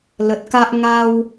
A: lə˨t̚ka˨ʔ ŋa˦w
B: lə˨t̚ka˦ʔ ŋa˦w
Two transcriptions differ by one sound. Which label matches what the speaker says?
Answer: B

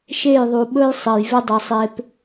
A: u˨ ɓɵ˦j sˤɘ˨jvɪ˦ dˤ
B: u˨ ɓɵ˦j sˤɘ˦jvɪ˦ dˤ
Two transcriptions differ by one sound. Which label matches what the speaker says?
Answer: A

